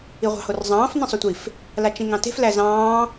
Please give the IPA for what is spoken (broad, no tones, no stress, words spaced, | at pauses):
iʁʷɑ̤horzˤɑ̃ːf nĩsˤutʷif | lat͡ʃĩŋɑ̃te̤f læzɑ̃ː